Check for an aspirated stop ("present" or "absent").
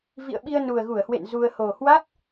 absent